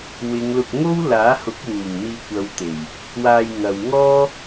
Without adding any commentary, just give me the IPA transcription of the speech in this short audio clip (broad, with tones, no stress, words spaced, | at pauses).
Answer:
wɪ˨˧ŋlʊ˧k̚ ŋo˥wlaː˨˥hʊ˨˥k̚wuː˨˩ŋ n̪iː˧kʷɐ˨˧w t̪e˨˩j | waː˧jŋɐ˨w ŋɔː˥